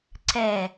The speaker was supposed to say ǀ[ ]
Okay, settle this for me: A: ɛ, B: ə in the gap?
A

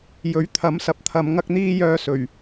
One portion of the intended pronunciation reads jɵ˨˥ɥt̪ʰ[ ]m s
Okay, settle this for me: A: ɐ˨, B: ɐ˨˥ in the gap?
B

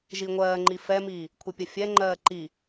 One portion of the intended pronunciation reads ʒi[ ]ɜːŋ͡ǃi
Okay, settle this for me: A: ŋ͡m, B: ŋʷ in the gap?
B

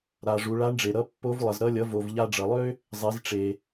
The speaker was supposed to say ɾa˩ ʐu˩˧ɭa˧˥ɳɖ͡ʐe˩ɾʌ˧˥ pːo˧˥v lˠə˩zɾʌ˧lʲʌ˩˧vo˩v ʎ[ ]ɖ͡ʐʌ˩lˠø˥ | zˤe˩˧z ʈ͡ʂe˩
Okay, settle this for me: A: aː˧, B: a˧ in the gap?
B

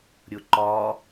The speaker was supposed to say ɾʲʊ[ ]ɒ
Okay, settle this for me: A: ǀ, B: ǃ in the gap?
B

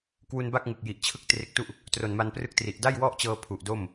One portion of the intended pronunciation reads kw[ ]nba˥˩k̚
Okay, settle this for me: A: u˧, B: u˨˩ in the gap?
A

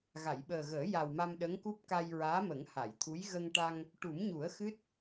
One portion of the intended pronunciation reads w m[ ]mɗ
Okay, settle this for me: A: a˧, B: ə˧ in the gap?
A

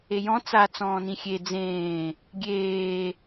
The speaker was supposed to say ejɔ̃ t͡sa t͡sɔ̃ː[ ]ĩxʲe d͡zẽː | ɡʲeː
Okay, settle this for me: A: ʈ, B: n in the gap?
B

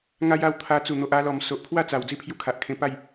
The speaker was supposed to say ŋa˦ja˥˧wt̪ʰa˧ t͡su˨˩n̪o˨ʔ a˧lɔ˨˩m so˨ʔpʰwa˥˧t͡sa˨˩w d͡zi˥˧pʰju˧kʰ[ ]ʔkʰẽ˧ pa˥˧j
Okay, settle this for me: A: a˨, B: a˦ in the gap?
A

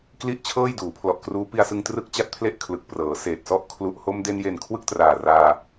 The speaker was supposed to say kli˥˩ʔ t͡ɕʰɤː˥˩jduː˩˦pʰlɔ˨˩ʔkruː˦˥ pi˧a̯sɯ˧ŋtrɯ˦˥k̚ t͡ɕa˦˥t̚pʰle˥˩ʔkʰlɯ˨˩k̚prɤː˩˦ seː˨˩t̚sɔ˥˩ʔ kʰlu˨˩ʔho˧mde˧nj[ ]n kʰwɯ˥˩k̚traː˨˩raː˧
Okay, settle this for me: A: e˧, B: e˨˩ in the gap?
B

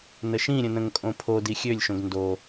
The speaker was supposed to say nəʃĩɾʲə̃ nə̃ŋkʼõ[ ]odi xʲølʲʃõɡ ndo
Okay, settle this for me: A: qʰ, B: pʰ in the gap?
B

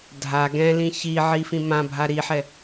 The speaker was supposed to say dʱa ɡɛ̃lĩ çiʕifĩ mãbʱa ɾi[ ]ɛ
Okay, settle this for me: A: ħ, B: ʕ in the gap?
A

